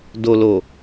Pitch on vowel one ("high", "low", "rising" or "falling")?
low